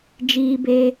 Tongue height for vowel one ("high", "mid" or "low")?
high